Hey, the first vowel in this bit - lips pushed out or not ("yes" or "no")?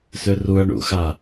yes